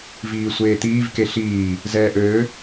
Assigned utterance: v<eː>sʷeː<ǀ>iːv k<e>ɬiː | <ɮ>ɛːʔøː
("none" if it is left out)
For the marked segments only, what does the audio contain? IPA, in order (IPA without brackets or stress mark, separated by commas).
iː, t̪, e, z